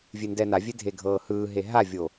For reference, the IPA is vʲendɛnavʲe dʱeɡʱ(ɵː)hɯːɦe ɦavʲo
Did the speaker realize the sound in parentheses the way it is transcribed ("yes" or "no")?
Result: no